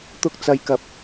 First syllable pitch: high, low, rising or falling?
high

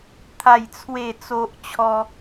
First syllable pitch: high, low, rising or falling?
falling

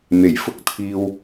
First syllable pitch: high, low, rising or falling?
low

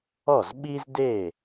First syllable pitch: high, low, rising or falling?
falling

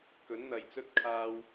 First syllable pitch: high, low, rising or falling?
rising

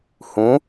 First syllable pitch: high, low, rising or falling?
rising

